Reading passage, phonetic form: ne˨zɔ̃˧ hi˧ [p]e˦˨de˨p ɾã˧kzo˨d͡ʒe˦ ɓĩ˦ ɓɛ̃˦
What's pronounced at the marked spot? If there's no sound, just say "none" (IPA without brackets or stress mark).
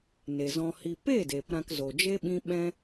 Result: p